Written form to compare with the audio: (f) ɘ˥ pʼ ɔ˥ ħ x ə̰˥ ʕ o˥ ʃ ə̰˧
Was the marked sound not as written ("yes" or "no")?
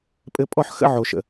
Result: yes